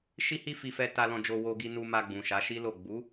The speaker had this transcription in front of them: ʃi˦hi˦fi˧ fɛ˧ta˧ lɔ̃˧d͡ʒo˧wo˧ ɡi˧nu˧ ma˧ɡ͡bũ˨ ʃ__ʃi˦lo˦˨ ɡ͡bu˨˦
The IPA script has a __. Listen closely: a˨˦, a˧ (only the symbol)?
a˨˦